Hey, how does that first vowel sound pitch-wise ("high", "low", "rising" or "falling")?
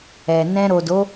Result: low